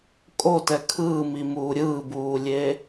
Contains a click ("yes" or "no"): no